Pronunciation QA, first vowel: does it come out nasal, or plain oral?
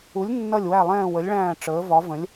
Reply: oral